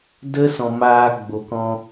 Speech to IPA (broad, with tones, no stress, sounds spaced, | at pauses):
d ə˦ s ɔ̃˨ m aː˧ ɡ͡b o˨ k ɔ̃˧